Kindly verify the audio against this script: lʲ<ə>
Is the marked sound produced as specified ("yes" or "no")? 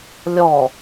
no